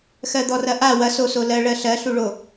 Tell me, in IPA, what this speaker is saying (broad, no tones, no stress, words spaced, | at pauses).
xɜd̪ɔrɐʔa wɐ sosolɜ ɭɜɬɜ ɬuɭo